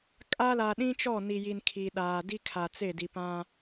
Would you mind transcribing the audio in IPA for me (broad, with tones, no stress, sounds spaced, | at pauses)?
kʼ a˦ l a˨ ɗ ĩ˦ t͡ʃ ɔ˦˨ n i˨ j i˨ n kʰ i˨ ɗ aː˨ d i˦ kʰ a˨ t͡s e˦˨ d i˨ p ã˦